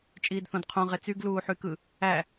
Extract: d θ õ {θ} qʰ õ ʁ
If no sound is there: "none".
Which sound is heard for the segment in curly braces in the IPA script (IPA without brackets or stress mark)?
d